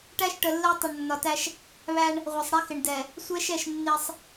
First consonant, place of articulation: retroflex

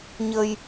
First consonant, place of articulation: palatal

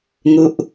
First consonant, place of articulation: velar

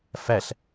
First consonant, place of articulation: labial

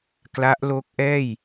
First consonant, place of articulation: velar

